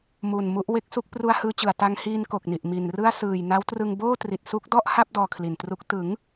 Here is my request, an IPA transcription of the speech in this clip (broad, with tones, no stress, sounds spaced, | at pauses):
m uː˨˩ n m u˦˥ ʔ w e˥˩ k̚ s u˥˩ k̚ p r u˧ a̯ h ɯː˧ t͡ɕ ɯ˨˩ a̯ t a˧ ŋ h iː˧ n k o˨˩ k̚ n i˨˩ ʔ m i˨˩ n r ɯ˥˩ a̯ s ɯː˨˩ j n a˦˥ w t r ɯ˧ ŋ b oː˥˩ t r i˨˩ t̚ s u˦˥ k̚ d ɔ˥˩ ʔ h a˥˩ p̚ d ɔː˧ kʰ l i˨˩ n t r u˦˥ k̚ t ɯ˩˦ ŋ